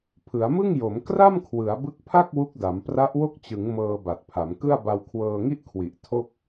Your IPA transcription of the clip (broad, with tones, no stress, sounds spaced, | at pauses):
pʰ ɯ˩˦ a̯ m ɯ˥˩ ŋ j o˩˦ m k r a˥˩ m kʰ w ɯ˩˦ a̯ b ɯ˦˥ k̚ pʰ a˥˩ k̚ w u˦˥ k̚ d a˩˦ m p r a˦˥ ʔ w o˥˩ k̚ t͡ɕ ɯ˩˦ ŋ m ɤː˧ b a˨˩ t̚ pʰ a˩˦ m k ɯ˥˩ a̯ b a˧ w kʰ w ɤː˧ ŋ i˥˩ ʔ kʰ w i˨˩ ʔ tʰ o˥˩ k̚